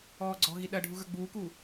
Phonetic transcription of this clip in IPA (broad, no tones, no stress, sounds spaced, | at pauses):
ɔː ɡ͡ǀ ɔ̤ ɣ i ɗ ɐ ɖʱ u ɣ ə˞ ɡ͡b uː k uː